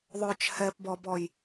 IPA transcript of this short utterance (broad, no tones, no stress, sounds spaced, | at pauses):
ðˤ œ t͡ʃ h ɛ p b ɔ b ɔ j